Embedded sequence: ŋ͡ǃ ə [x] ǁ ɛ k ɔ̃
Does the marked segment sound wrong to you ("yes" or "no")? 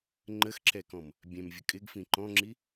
no